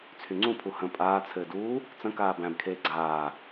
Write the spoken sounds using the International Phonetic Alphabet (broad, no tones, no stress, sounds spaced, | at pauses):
t͡sʰ y ŋ͡ǀ ũ pʰ u h ə̃ pʼ aː t͡sʰ ɘː d uː | t͡s ə̃ k aː b æ̃ b kʰ eː ɡ͡ǀ aː